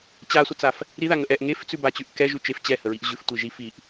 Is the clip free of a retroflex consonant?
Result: yes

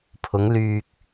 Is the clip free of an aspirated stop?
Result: no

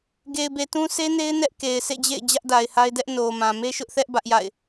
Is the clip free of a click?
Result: yes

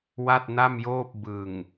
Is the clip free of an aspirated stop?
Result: yes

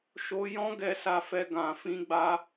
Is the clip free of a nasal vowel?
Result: no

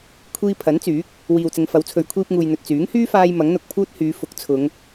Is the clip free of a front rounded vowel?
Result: no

